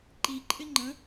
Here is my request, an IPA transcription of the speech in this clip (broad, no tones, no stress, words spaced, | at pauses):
ǃiǃʼɪ ŋ͡ǃə̃